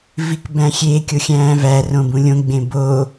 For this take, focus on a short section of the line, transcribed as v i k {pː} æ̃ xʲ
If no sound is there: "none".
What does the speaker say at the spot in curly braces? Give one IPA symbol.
b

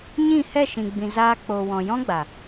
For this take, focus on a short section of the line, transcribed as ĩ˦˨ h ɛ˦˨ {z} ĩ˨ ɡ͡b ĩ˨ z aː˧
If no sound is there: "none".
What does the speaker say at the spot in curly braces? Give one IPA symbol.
ʃ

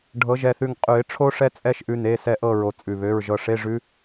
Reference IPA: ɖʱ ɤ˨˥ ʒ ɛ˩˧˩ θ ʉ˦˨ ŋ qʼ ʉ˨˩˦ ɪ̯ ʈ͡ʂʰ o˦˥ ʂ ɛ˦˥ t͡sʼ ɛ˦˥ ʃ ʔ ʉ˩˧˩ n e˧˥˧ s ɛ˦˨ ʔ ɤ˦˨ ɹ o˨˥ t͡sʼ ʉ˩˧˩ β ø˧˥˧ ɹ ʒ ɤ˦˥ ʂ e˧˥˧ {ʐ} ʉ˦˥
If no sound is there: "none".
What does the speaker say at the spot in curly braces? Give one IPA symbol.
ʐ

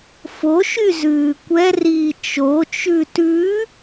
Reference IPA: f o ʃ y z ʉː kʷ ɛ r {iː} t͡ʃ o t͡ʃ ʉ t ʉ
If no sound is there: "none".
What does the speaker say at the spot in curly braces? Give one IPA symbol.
iː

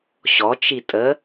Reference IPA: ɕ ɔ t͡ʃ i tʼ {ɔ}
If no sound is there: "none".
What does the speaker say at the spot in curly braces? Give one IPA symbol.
ə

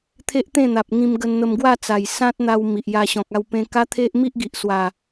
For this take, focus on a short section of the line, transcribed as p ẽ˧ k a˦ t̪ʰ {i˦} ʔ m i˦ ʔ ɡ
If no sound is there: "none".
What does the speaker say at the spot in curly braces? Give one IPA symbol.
e˦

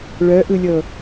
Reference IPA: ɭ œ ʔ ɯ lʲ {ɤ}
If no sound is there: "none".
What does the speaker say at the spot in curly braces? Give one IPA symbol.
ɤ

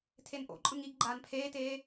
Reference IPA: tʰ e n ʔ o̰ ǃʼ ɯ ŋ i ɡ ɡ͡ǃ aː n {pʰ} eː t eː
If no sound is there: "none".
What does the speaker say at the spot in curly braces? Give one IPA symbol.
pʰ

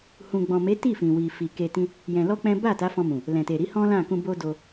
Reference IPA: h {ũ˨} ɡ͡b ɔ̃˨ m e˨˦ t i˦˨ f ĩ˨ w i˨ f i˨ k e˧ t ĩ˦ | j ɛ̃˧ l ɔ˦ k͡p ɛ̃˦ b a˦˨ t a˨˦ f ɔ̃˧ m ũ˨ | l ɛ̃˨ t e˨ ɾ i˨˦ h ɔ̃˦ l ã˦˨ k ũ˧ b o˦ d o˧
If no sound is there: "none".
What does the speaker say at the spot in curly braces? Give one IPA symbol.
ũ˨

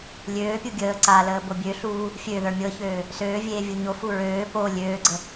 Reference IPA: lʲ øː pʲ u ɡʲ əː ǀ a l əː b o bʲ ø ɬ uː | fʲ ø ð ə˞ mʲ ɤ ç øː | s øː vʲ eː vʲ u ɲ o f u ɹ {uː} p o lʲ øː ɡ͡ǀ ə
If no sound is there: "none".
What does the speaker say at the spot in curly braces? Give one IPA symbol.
øː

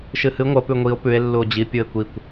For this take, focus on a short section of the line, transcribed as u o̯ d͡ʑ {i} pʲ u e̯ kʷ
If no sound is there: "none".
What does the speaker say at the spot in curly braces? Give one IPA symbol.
i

